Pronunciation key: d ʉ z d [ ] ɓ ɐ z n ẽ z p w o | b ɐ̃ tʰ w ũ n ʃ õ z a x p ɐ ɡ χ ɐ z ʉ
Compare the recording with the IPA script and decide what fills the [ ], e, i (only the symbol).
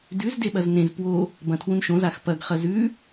e